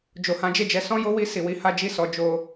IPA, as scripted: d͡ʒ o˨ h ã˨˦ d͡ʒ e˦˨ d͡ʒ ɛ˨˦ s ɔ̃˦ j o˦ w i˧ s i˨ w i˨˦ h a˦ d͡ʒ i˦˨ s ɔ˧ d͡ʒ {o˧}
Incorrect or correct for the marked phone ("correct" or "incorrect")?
correct